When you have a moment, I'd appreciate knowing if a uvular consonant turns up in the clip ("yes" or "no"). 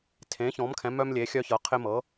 yes